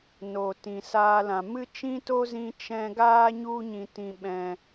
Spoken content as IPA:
n o˨ t ĩ˨ s aː˧ l ã˨ m ɨ˦ t͡ʃ ĩ˦ t o˦ z ĩ˧ t͡ʃ ɛ̃˧ ɡ aː˦ ɲ u˧ ɲ ĩ˨ t ĩ˨ ɓ ɛ̃˨

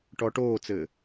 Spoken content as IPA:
ʈ ɔ ʈ oː t͡s ɘː

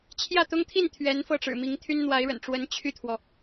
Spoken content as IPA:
t͡ɕʰ j ä˥˩ t̪ ʊ˥ ŋ t̪ʰ i˥˩ n t̪ʰ ɥ ɛ˧˥ n f ɤ˥˩ ʈ͡ʂ ɻ̩˨˩ m i˧˥ ŋ t̪ʰ y˥ n n̪ w a˧˥ ɪ̯ ɻ ə̰˨˩ n ʈ͡ʂ w ə˧˥ n t͡ɕʰ y˥˩ t̪ʰ w ɔ˩

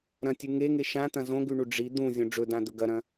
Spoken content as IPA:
ɾ ɐ̃ tʲ ʉ ŋ e ŋ e ʃ ã t̪ ɐ̃ z õ ɡ ʉ ɳ u ɖ͡ʐ i d̪ ũ zʲ õ ɖ͡ʐ ɵ d ã d̪ ɵ ɡ ɐ ɾ ɐ̃

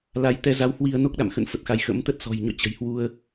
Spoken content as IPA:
l a˨˦ j t̪ ɛ˧ z a˨˦ w h w i˧ ə̯ n o˦˥ k̚ ɗ a̰˧˨ m x ə̰˧˨ n f ə˨˩ t̚ x a˨˦ j x ə̰˧˥ m t̪ ə˦˥ t̚ s ɔ̤˨˩ j ɲ ɔ̰˧˨ t͡ɕ ə̤˨˩ j h w u˧ ə̯

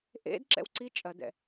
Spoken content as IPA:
ʔ ḛ d ǁ ɛ̰ w ǀ i t͡ʃʼ ɐ d̪ ɛ̰

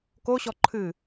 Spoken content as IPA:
k o ɕ ɔ ǃʰ ɨ

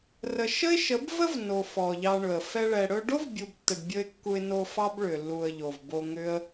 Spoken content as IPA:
r ə˨ ʃ ə˦ ɪ̯ ʃ ə˨˦ b v ə˦ v n o˨ f ɔ˨ ʎ ɑ˧ ɳ ɵ˨ ə̯ f ɛ˧ ɭ ɛ˨ ɽ ɵ˧ ɖ o˦ v bʲ u˨ b tː ə˨ ɖ bʲ ɵ˧ ɪ̯ kː u˧ ɪ̯ n o˧ f ɑ˦ b ɭ ʏ˨ lː u˨ ə̯ ʎ o˨ v b o˧ ŋ ʏ˦ ə̯

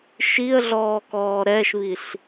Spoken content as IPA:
ʃ i ə̯ ɮ ɔː k ɔː ɾ ɛ ʃ β i ɬ

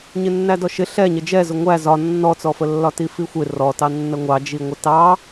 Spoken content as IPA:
ɲ ɪ nː æ d ɔ ʃ ɪ ɬ ɛ ɲ ə d͡ʒ ɛ z ʊ ŋʷ æ z ɒ nː ɔ t͡s ɔ f ə lː ɒ t i f i xʷ ɪ r ɔ t ɑ nː ə ŋʷ ɑ d͡ʒ i ŋʷ ə t ɑ

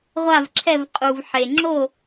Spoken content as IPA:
ʁʷ a˦˨ v ǁʰ ɛ˦˨ v qʼ u˨ v ħ e˨ ŋ͡ǁ o˦˨

